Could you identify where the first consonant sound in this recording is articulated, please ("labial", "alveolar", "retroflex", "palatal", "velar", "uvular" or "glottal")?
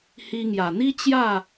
glottal